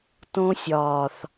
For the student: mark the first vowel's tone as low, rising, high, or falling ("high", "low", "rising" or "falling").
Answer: high